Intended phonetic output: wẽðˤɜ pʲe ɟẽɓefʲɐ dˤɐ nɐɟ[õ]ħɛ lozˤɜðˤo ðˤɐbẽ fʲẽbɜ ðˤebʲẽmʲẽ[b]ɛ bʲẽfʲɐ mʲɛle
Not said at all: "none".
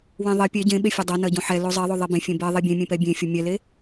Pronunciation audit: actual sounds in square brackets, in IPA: õ, p

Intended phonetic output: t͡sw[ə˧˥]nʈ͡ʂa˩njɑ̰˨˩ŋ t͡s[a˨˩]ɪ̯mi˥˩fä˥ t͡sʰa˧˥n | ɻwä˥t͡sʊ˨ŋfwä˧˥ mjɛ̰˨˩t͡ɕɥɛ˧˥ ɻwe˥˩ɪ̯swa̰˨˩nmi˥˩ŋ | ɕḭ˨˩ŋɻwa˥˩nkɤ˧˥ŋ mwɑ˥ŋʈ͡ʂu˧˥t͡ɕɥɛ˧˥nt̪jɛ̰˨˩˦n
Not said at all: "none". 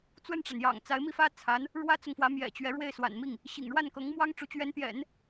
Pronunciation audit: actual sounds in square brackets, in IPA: ə˥˩, a˧˥

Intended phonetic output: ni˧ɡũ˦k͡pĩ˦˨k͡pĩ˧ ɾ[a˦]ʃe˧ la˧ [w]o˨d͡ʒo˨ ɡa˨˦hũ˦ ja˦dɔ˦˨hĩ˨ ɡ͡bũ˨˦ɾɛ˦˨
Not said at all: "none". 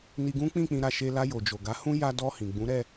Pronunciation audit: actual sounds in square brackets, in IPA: a˧, j

